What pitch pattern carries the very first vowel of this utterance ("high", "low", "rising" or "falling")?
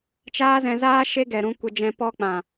high